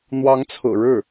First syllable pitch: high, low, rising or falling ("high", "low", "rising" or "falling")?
rising